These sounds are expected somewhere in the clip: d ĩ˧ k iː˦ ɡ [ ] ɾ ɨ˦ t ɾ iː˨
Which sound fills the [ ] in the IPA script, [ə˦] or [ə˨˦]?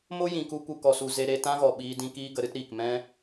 ə˨˦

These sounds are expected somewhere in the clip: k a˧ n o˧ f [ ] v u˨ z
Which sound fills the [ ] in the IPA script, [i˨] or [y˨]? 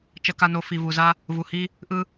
i˨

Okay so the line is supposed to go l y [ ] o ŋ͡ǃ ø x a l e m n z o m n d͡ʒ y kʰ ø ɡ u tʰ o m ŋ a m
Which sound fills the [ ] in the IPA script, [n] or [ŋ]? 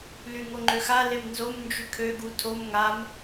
ŋ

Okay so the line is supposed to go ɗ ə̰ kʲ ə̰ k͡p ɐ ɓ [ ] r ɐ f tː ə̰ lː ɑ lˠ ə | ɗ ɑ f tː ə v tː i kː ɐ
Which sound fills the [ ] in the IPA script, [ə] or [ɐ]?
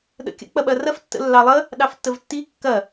ɐ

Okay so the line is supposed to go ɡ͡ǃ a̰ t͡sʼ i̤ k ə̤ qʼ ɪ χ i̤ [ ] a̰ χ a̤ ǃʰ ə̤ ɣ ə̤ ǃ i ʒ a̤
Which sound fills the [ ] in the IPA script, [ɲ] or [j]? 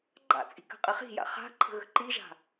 j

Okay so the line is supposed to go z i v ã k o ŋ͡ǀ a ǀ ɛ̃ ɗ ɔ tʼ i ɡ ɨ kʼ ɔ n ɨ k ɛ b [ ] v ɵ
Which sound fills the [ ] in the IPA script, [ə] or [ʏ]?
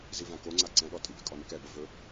ə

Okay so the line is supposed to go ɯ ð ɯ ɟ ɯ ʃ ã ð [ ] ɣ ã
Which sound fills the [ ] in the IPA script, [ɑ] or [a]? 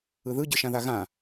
a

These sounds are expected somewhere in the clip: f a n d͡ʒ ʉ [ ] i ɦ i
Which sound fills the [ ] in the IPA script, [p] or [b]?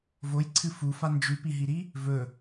p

